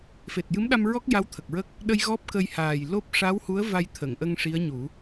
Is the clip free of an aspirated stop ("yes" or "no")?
no